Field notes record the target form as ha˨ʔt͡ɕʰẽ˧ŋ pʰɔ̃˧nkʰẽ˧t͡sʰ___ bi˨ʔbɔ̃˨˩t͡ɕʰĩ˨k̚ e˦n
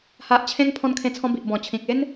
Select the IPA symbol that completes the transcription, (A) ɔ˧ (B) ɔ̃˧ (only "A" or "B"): B